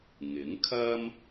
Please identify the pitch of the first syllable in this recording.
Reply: rising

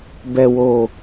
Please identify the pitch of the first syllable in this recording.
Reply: low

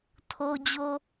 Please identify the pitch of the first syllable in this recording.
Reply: low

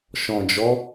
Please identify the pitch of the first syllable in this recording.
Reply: low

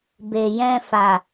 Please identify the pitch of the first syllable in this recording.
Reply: low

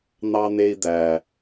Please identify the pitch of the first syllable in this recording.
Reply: high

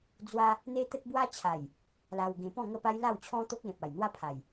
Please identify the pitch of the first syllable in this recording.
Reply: high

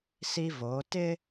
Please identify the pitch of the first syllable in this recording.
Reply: high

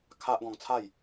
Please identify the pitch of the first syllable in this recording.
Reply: high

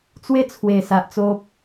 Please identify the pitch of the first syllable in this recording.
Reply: falling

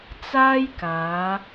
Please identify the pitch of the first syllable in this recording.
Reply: high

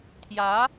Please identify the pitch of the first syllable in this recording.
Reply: rising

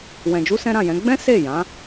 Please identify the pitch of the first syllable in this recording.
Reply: low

